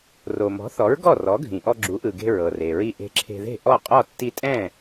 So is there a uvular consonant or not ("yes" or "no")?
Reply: yes